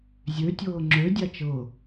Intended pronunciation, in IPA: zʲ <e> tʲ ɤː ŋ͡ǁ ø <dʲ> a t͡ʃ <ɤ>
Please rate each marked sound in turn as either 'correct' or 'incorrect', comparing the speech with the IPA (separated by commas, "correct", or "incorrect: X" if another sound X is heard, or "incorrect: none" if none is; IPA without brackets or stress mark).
incorrect: ø, correct, correct